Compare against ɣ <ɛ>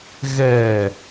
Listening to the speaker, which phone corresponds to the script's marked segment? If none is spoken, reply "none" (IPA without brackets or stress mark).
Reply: ɛ